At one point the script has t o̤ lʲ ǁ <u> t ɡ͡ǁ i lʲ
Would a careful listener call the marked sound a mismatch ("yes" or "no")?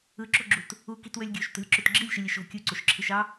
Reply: yes